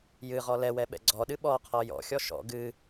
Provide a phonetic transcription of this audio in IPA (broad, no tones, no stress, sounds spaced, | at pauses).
j ɨ ʁ ɔ l ɛ w ɛ ɓ ɛ̰ ɡ͡ǀ ɔ ɗ ɨ ɓ ɔ qʰ ɔ j ɔ̰ xʲ ɔ ʃ ɔ̰ ɡ ɨ